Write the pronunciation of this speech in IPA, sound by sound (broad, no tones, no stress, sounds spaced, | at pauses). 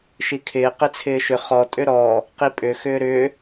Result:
ʃ i kʰ ɪː q ɪ t͡sʰ ɪː ʃ ʏ χ ɔ tʼ ʏ ɾ ɔː | q i pʼ ʏ x ʏː ɾ ʏː